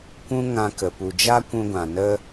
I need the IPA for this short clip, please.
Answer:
kʷ ũ˦ ŋ ã˧ k ə˨ p u˨ d͡ʒ a˦ kʷ ũ˧ ɡʷ ã˨ n ə˦

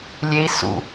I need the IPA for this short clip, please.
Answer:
lʲ e i̯ s ṵ

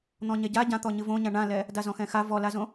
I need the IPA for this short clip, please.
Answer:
n̪ ɔ̃ ɲ ɛ ɟ a ɟ ã t̪ ɔ ɲ ɨ v õ ɲ ã ɳ ã l ɛ | d a z ɔ̃ x ɛ̃ x a v ɔ l a z õ

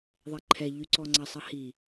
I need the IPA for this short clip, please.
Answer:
ðˤ ɛ ǃʰ ɛ ʎ y ǀ ɔ ŋ͡ǀ ɐ sˤ ɐ h i

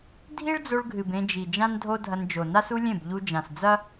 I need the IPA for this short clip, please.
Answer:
dʱ i˦ ɭ d͡z o˧ ɭ ɡʱ ɨ˨ b ẽ˧ d͡ʒ i˨ d͡ʒ ã˦ n dʱ o˦ dʱ ɐ˧ n d͡ʒ o˨ n a˦ s u˦ lʲ ẽ˦˨ b ʎ u˧ d͡ʒ ã˨ s d͡z ɐ˦

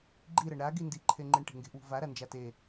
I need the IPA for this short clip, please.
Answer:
ɡ͡ǃ i ɾ ɐ ɳ ɾ a ɡ i n d i ǃʰ e ŋ͡ǃ i ɳ ʈ e̤ ŋ ɡ e̤ ʔ w ṳ v a ɾ a n d͡ʒ a t e

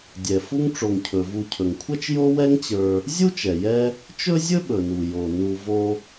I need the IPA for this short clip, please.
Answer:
dʲ ɛ˩ f u˦ ŋ ʈ͡ʂ o˨ ŋ cʰ ɵ˩ v u˨ cʰ ɵ˩ ŋ kʷʰ ɛ˥ t͡ʃ j o˦ w ɛ˦ ŋ t͡ɕ ə˞˨ | zʲ u˥ t͡ʃ ɛ˩ j ɛ˦ | t͡ʃ ɵ˥ zʲ ɵ˥ ɓ ɵ˩ n u˩ j o˩ n u˨ v o˦

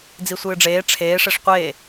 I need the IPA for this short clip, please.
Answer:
d͡z i sʷ ɨː ɖ͡ʐ eː ʈ͡ʂʰ eː ʂ e ʂ qʷ eː

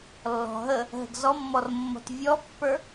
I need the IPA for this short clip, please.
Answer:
lː ɔ̤ ɦ ə | ɦ ə̤ ɡ z ɔ mː ɔ r mː ɔ̤ t vʲ ɔ pː ə˞

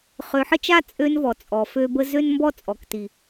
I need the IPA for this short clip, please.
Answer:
χ ø˨ ħ ə˦ t͡ʃ a˦ t͡sʼ ø˦ n v ɔ˨ t͡sʼ ɔ˨ f ø˦ b ə˦ z ø˦ n m b ɔ˦ t͡sʼ ɔ˨ k t i˨

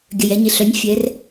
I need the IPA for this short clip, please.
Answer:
ɡʲ œ˩ j ɛ˩˧ ɲ ɪ˩ ɬ œ˩˥ nʲ fʲ ɛ˩˧ r

